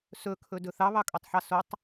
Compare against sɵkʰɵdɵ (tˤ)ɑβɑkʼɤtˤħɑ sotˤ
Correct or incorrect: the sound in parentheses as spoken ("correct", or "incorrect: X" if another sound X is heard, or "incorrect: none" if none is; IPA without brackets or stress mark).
incorrect: θ